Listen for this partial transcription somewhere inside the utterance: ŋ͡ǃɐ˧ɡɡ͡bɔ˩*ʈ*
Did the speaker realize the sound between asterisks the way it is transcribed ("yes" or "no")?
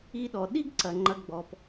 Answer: no